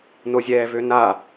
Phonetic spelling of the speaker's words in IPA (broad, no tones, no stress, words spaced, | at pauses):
nozʲɛːvøna